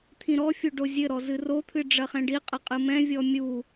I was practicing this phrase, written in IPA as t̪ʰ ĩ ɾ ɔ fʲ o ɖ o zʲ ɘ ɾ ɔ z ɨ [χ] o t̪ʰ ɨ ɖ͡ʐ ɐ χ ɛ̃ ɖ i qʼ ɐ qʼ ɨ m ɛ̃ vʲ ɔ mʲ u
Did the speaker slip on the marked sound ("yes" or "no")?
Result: yes